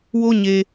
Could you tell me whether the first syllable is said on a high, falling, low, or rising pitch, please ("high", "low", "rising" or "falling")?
high